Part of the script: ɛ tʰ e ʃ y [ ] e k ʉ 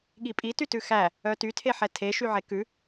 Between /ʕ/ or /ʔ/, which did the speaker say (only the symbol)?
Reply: ʕ